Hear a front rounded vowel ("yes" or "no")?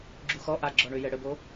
yes